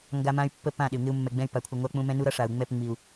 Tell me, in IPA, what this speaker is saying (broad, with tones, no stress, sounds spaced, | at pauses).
ŋ ɡ a˦ m ã˦ y̯ pː ə˦ p ã˦˨ ɗ ɪ˨ u̯ ŋ ɪ˦ u̯ mː ɛ˨ ɡ͡b ɛ̃˦ y̯ p a˨ kʷʰ ɪ˨ ŋʷ a˦ k͡p ũ˦ m ɛ̃˦ n u˦ ɾ ʌ˦ ʂ a˨ u̯ ŋ͡m ɛ˦˨ p ŋ͡m i˨ u̯